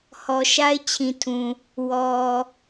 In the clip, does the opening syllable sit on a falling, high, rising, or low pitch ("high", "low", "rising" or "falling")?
low